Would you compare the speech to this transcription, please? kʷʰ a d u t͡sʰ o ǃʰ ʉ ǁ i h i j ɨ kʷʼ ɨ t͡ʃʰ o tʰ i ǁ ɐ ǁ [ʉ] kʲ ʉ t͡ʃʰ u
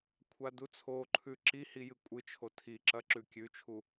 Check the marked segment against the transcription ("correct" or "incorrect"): correct